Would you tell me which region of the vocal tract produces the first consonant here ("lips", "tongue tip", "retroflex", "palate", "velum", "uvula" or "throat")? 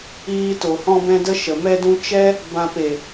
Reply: tongue tip